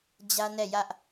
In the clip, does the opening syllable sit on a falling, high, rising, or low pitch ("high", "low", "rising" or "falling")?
high